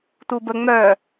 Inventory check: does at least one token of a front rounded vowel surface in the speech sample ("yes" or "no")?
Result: yes